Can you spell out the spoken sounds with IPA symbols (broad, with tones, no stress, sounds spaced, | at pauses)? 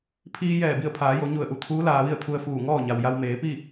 pʰ iː˧ j ɛː˧˩ b i˧˩ ə̯ pʰ aː˩˧ j o˩˧ ɲ u˧˩ ə̯ ʔ u˩ t̪ʰ uː˧˥ l aː˧ ʋ i˥˨ ə̯ t̪ʰ u˧ ə̯ f uː˧˩ ŋ ɔː˥˨ ɲ a˩ w j a˧ w m eː˩˧ p i˥˨